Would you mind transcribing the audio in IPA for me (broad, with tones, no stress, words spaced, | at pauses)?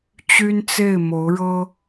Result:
t͡ɕy˥nt͡se˥˩ɪ̯ mo˧˥ʊ̯ɻɤ˥